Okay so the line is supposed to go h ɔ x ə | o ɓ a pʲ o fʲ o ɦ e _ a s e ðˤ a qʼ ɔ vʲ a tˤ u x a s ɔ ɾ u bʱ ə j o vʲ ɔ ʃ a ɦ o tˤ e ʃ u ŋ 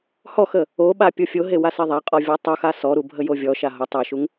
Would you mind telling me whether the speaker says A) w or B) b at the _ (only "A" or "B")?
A